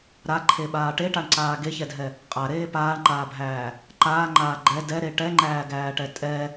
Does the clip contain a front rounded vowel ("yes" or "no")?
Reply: no